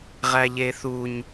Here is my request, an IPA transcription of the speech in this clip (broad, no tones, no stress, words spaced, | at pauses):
ʁæʎeθuɲ